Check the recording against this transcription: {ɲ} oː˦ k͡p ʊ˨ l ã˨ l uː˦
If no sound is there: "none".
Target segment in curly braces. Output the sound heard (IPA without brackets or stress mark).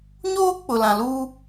ɲ